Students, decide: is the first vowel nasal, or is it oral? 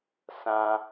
nasal